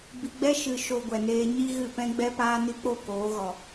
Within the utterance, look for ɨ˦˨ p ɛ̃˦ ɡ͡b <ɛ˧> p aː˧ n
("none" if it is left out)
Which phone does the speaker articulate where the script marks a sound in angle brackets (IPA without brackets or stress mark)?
ɛ˧